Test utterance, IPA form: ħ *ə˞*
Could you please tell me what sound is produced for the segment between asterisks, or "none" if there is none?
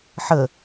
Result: ə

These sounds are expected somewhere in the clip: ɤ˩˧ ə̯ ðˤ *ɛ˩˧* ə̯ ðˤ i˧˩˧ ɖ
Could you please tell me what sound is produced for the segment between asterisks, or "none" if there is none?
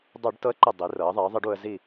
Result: ɛ˩˧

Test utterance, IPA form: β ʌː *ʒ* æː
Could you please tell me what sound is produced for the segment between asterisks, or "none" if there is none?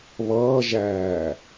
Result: ʒ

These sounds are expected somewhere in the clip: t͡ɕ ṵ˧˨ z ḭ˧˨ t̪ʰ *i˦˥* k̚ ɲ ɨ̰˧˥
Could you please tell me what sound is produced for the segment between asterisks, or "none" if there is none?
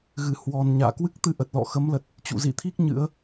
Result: i˦˥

